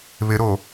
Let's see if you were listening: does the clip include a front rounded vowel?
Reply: no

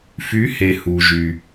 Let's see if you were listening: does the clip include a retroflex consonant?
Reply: no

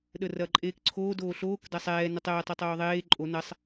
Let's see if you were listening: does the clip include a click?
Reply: yes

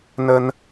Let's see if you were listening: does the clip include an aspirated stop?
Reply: no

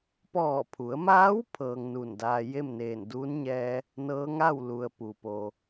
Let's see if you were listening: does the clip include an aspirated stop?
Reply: yes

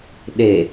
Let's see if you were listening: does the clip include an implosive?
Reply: yes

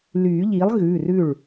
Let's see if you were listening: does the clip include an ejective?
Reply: no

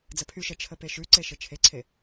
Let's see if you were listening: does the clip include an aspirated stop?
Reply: yes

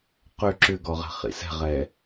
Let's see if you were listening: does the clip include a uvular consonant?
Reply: yes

